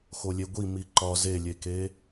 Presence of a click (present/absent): present